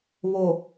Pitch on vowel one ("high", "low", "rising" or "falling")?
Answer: low